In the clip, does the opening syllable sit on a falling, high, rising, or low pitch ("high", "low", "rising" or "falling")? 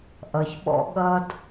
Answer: low